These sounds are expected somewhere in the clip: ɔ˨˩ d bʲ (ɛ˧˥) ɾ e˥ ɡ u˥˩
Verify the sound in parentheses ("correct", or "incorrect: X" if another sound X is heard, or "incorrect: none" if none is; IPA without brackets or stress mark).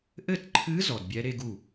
correct